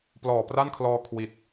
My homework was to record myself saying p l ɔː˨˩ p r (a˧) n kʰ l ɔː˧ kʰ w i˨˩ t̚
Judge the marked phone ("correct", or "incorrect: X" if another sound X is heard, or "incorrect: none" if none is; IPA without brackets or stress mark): incorrect: a˥˩